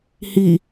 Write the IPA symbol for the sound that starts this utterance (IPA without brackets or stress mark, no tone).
h